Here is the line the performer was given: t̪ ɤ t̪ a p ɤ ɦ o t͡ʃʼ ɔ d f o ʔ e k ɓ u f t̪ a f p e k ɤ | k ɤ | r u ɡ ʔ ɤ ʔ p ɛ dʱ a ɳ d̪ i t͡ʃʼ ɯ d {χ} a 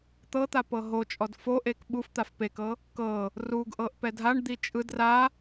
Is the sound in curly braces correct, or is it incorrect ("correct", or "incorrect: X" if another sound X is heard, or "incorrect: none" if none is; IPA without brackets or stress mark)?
incorrect: r